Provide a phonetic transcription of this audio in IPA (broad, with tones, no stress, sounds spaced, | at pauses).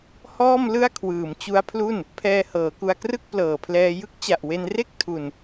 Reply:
h ɔː˥˩ m l ɯ˥˩ a̯ kʰ w ɯː˨˩ m t͡ɕ u˦˥ a̯ pʰ l u˥˩ n | pʰ ɛː˧ h ɤː˩˦ k u˧ a̯ k r ɯ˥˩ k̚ p l ɤː˨˩ pʰ l ɛː˧ j ɯ˦˥ k̚ t͡ɕ a˨˩ ʔ w e˧ n r e˥˩ k̚ tʰ u˧ n